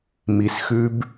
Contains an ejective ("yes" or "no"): no